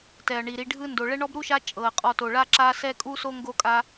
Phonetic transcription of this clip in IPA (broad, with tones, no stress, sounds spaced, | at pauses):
t ɛ˩ ɐ̯ ɳ i˩ ɾ i˨ ɖʱ ɯ˦ n d o˩ ɭ ɛ˦ ɳ ɔ˥ b ɾ u˥ ʃ a˦ t͡ʃʼ ɤ˩ ɐ̯ qʼ ɔ˨ t o˩ ɭ a˥ ǁ a˦ s ɛ˥ kʼ u˥ s o˥ ŋ ɡ o˥ kʼ a˥